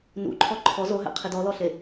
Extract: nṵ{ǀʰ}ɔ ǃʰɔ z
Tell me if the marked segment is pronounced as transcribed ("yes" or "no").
no